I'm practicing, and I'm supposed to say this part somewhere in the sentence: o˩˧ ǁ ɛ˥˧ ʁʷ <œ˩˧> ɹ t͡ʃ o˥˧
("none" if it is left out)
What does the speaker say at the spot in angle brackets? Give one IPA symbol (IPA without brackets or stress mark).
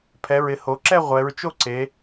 ɛ˩˧